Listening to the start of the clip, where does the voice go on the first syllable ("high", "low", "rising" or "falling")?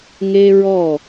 high